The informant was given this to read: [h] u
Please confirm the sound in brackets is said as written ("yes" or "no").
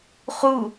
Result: no